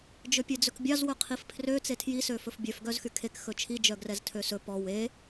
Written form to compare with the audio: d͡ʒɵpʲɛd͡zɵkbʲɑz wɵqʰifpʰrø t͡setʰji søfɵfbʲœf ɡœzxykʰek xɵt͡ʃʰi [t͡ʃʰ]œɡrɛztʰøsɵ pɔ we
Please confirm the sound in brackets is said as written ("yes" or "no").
no